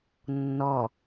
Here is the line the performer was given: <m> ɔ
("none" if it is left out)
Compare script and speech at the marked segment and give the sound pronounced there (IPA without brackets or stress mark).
nː